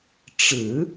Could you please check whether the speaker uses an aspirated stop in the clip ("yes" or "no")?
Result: no